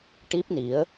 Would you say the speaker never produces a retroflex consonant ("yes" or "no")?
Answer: no